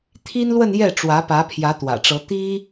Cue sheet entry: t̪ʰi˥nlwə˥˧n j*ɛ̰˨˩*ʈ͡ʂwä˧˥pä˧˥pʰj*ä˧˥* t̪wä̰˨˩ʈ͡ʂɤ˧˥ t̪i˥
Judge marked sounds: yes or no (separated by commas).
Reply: no, yes